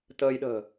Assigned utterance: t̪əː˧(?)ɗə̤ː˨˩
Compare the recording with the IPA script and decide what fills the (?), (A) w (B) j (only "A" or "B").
B